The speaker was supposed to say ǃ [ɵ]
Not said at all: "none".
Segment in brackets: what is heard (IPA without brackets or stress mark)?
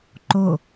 o